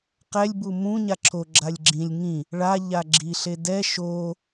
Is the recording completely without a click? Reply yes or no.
no